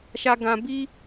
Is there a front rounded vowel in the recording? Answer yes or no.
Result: no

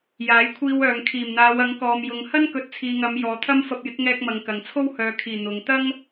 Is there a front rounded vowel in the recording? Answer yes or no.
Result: yes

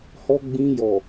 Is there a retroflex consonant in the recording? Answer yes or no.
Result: no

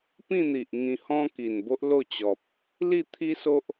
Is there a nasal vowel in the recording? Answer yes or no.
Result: yes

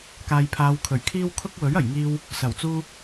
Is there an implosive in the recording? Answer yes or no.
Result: no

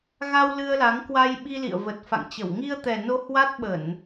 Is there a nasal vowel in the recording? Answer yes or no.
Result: no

